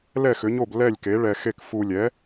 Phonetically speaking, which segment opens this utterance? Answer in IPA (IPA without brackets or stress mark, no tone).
l